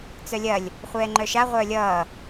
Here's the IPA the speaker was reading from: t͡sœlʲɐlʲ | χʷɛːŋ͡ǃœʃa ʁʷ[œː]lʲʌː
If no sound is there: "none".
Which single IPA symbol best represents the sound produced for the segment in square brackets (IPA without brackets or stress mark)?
œː